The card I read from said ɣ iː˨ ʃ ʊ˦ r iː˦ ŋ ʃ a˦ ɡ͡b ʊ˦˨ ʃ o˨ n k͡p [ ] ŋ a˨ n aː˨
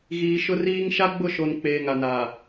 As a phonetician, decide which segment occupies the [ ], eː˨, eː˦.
eː˨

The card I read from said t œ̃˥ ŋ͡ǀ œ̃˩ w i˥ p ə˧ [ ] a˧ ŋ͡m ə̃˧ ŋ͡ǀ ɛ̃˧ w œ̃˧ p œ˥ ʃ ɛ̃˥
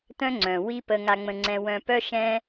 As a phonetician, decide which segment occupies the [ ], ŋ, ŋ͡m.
ŋ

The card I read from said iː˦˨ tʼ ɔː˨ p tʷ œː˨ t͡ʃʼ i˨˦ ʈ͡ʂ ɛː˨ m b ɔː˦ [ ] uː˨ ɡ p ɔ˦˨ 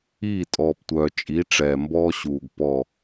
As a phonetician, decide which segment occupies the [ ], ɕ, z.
ɕ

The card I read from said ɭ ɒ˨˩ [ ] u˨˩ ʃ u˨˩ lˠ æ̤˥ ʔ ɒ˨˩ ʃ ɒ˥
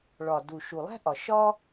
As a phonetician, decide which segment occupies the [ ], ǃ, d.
d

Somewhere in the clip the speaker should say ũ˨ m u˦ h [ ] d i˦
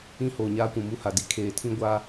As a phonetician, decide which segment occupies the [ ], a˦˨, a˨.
a˨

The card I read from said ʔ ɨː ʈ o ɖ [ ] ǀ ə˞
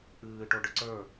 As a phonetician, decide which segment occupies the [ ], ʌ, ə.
ə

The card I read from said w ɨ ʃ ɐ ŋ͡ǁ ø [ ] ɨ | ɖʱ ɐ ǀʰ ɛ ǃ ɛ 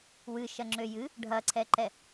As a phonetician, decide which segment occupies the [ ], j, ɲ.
j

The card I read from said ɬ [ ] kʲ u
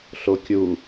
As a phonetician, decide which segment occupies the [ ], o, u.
o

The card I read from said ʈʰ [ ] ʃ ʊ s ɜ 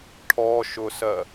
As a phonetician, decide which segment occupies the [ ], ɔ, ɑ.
ɔ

